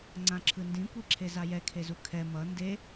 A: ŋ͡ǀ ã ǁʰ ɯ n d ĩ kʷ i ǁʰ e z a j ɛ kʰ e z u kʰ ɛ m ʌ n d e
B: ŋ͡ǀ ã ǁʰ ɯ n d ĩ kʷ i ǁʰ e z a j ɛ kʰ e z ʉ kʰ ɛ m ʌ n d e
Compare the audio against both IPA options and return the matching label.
A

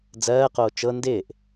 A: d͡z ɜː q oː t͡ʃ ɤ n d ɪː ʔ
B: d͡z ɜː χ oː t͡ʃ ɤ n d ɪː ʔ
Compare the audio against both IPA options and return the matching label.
A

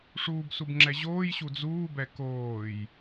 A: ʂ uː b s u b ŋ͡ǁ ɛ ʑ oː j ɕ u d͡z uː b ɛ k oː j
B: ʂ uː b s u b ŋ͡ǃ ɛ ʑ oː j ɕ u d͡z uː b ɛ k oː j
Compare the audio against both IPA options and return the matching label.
A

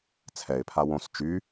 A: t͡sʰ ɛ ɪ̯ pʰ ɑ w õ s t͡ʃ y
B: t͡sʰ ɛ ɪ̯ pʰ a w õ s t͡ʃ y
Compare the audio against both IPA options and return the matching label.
B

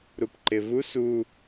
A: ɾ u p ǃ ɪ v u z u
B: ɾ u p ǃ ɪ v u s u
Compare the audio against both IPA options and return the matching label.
B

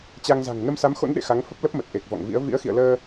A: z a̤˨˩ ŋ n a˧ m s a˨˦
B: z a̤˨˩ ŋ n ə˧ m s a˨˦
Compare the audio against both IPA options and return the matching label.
B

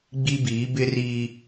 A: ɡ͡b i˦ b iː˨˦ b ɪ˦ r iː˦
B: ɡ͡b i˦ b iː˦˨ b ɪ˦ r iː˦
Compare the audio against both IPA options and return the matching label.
A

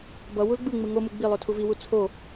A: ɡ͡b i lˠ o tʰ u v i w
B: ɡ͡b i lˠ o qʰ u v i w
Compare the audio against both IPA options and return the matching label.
A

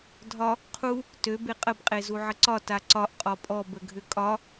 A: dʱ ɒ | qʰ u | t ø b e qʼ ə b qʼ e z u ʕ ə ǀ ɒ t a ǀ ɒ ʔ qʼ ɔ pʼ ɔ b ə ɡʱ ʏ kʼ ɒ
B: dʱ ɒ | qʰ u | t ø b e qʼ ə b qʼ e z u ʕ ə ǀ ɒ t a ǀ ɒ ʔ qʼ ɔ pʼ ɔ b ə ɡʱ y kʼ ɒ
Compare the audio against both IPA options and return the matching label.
A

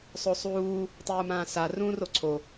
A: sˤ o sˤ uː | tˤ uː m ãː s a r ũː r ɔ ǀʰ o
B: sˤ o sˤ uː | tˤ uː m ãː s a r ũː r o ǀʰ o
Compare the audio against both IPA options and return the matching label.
B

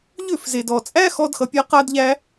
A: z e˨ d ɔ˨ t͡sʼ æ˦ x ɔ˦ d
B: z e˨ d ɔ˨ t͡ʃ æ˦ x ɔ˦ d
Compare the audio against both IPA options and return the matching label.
A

